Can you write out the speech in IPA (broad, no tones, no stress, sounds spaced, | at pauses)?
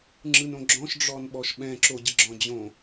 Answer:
ŋ͡ǁ ɯ n õ ɡ͡ǁ ɔ̃ ʃ ɖ͡ʐ ɔ n ɓ ɔ ʃ ɓ ɛ̃ ǁ o ɟ ə ɡ͡ǁ ɔ̃ d͡ʑ õ